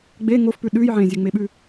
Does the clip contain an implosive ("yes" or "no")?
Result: yes